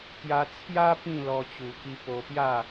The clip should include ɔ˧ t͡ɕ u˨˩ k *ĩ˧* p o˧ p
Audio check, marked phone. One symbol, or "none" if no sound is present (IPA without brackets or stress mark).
i˧